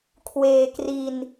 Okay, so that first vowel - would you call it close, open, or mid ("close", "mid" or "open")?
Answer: mid